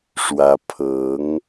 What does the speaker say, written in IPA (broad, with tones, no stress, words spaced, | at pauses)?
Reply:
ʂwä˧˥ pʰɤ˧˥ŋ